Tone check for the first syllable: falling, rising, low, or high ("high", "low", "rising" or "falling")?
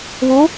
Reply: rising